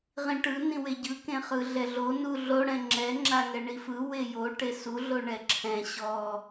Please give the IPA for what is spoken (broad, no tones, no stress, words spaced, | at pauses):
ʁĩʈɯ nĩweɟɯ kẽχɯɮɛɮo nuɮo ɽɛ̃ŋ͡ǁɛ ŋ͡ǁaŋɛɳifɯ wejo ʈesu ɮoɳɛǁʰɛ̃ ɕɔ